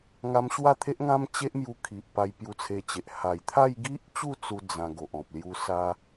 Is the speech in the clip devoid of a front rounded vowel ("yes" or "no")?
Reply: yes